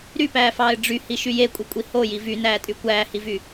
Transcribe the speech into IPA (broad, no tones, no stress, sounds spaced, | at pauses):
ɾ y p æː f ɑː ɪ̯ ɖ͡ʐ y h i ʃ y j e kʷʼ e kʷʼ i h o j i v y n æː tʼ y kʷ æː h i v y